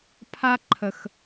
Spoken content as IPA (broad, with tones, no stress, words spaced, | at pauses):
pʰa˦ǃʰə˨x